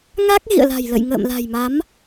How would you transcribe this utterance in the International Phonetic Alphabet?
ŋa˦˥k̚ ɣḭ˧˨ə̯la̤˨˩jlə̰˧˨j ŋə̰ː˧˨mla̤˨˩jma˨˦m

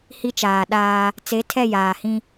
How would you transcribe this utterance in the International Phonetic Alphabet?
hi˦t͡ʃaː˨ ɗaː˦ | t͡se˨˦tʰɛ˦˨ jaː˨hĩ˦

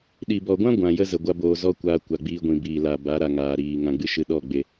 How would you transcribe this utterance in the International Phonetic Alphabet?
ɗi˨bɔ˨ɡʷã˦ ɡʷã˨jə˦ zə˨ ɡʷa˦boː˧ zɔ˦kʷaː˧ kʷa˨ɡ͡biː˧ɡʷĩ˨biː˨ la˨ ba˨˦ɾa˨ŋaː˨ɾiː˨ ŋã˨ ɡ͡bɨ˦ʃɨ˧ ɗɔ˦˨ ɡ͡be˧

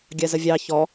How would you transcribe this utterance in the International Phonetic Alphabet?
ɡʲɜzəvʲɑ çɔ

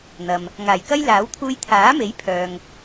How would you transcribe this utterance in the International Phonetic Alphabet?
n̪ɐ˨m | ŋaː˨˩jkɐ˥jlaː˨˥wt̪ʰuː˧j t̪ʰaː˨˥me˨˥j pʰœː˨ŋ

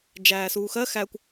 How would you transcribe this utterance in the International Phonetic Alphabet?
d͡ʒæːsuːxɜ xækʷ

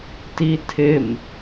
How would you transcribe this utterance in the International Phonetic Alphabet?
titʰɪm

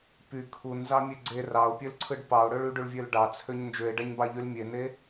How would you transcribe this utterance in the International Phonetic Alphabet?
py kʰunzɑmʲe ɡ͡ǀe rɑo̯pʲølǀʰɯɖ pɑo̯ɽøɭ yɖyɭvʲøl ɖɑt͡sʰøɲ nd͡ʒøe̯ɖæɲbɑʎyl mʲene

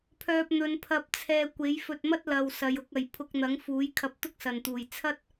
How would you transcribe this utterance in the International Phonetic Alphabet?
pʰœː˧p̚n̪ɵ˨˧npʰɐ˧p̚t͡sʰɛː˧ kʷe˨˥jfɵ˧t̚mɐ˥t̚ lɐ˨w sɐ˨˧jʊ˨˥k̚ɐ˨j pʰʊ˧k̚ n̪ɐ˨˥ŋfuː˨˥jkʰɐ˧p̚ t̪ʊ˥k̚sɐ˨nt̪uː˨j t͡sʰɐ˥t̚

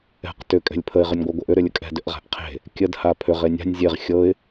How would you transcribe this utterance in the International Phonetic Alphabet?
ɛ̤q tʏ kʼɛ̤lʲpʰəɪ̯ ʁʏnʲɡʷaɡʷɤʔʏ ɾʏlʲəkʼɛ̤ dʏʔʁa̤ʔqʰe̤ | kʲəd hapʰʏʁ enʲa̤nʲ zʲeʁ xʲɤɪ̯

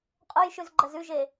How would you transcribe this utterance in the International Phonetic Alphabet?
qʼojʃʉzɡ͡ǃɐz ʉʒe

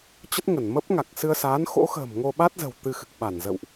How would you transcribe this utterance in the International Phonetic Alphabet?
t͡ɕə˦˥t̚ŋə˧˩n mə˦˥p̚ŋa˨˩k̚sɨ˧ə̯saː˨˦n xo̰˧˥xə̤ː˨˩m ŋo˧ɓa˦˥t̚zə̤˨˩w t̪ɨ˧xɨ˨˩k̚ ɓa˧˩nzə̰˧˨wʔ

